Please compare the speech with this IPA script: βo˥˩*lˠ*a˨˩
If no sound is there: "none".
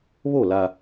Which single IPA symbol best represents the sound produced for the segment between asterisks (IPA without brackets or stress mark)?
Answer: l